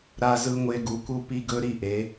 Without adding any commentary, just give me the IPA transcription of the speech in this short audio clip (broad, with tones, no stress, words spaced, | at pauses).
ɾa˥zɯ˥ŋʷe˥ ɡu˧˥ku˥ pi˥ɡɵ˥ɾi˥ʔe˧˥